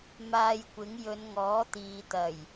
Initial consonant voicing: voiced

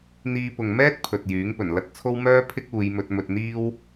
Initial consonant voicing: voiced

